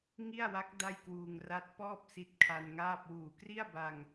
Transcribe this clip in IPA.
ŋ i˥˩ a̯ w a˦˥ k̚ d a˥˩ j k w uː˧ ŋ r a˦˥ t̚ p ɔː˥˩ p̚ s i˦˥ t̚ kʰ a˧ n ŋ aː˥˩ p̚ w uː˨˩ k r i˥˩ a̯ b a˧ ŋ

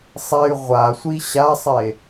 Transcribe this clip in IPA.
sˤ e y̯ ʁʷ a sʷ i ɕ a sˤ e

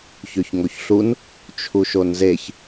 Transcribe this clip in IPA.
ç ø ç ŋ o ç ɬ u n | t͡ʃʰ u ʃ o n z e ç

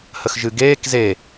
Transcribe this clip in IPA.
h ə x ʒ ɨ ɡ eː k z e

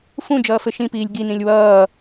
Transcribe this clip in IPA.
f ũ d͡ʒ ʌː f ɘ ʃ ĩ p iː lʲ ɡ i n ĩ lʲ w ʌː

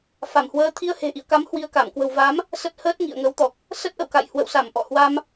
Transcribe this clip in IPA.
f a˧˩ m h w əː˧ t̪ʰ i˧ ə̯ h e̤˨˩ ʔ ḭ˧˨ ə̯ k a˨˦ m h w i˧ ə̯ k a˧˩ m k w ə̤˨˩ w v a˨˦ m | s ə˦˥ t̚ h əː˦˥ t̚ ŋ ḭ˧˨ ə̯ ŋ ə˨˦ w t̪ ɔ˨˩ k̚ | s ə˦˥ t̚ ʔ ə̰˧˨ w k a̰˧˨ j h w ə̰˧˨ w s a˧˩ m ʔ ɔ̰˧˨ h w a˧ m

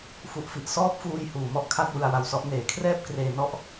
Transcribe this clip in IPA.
f u˨˩ ʔ f i˨˩ ʔ s ɔː˦˥ p̚ f uː˧ j h uː˨˩ m ɔ˥˩ ʔ kʰ a˥˩ t̚ w ɯ˧ a̯ w a˧ w s ɔ˦˥ ʔ n eː˩˦ kʰ r ɛː˥˩ p̚ k r eː˧ n ɔ˥˩ ʔ

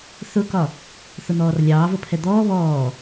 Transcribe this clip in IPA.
θ ʊ k ɒ | θ ʊ n̪ ɔː r lʲ ɑː v ə pʰ ɛ d̪ ɔː β ɔː

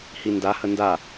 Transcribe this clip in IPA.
h i n d a h ə n d a

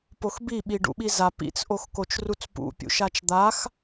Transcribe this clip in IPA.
p o x b i ɓ i ɖ ṵ ɓ i z a p ḭ t͡s ʔ o x k o t͡ʃ r u t͡s p ṵ pʲ ṵ ʃ a t͡ʃ d̪ a x

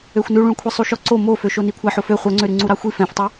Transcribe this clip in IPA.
ø xʷ n ʉ ɭ ũ ɭ kʷʰ ɛ sˤ u ʃ ɔ ǀ o m o f ø ʃ o n i kʷʰ æ ħ o f ø χʷ œ ŋ͡ǀ ø ɾ ʉ ŋ͡ǀ u ɾ ɑ xʷ i f ɛ̃ f tˤ y

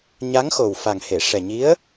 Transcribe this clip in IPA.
ɲ a˧˥ ŋ x o˨˩ w f a˨˩ ŋ h e˨˩˨ ʂ ɛ˨˩ ɲ i˧˥ ə̯

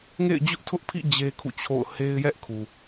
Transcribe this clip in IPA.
ŋ ḛ˦˨ ɪ̯ d͡ʑ ʊ˦ ʔ tʰ ʊ˦ ʔ pʰ ḭ˦˨ d͡ʑ e˦ kʰ ṵ˦˨ t͡ɕʰ o̰˦˨ ʊ̯ h e˦ ɪ̯ j ɛ˦ ʔ kʰ u˨

